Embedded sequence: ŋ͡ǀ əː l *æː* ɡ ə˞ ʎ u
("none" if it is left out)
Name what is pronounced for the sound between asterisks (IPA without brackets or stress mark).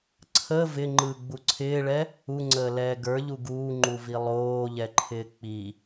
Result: ɛː